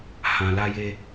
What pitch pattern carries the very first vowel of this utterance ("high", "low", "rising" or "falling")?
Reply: low